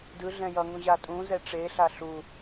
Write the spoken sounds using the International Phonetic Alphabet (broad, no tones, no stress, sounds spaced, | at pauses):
d ɯ ɮ ɛ̃ j ʌ ŋ ũ ʑ a tʼ ũ z ɛ ʈ͡ʂ e ɬ a ɬ u